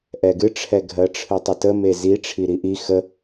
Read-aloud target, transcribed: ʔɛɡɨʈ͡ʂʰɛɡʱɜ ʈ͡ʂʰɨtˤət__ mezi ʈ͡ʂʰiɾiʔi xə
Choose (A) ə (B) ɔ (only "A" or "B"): A